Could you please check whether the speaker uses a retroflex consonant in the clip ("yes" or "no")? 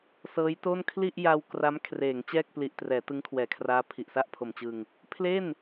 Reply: no